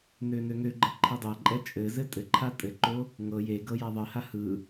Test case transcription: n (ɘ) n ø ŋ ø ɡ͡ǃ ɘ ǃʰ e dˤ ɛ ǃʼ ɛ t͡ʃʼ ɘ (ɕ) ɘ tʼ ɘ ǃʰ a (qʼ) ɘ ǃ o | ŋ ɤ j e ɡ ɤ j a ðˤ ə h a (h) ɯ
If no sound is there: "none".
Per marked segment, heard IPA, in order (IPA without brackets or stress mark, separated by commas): ø, z, tʼ, h